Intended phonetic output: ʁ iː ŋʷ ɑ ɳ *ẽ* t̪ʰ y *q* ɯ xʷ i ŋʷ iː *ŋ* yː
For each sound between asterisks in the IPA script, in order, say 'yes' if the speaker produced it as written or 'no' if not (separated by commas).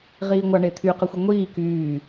no, yes, no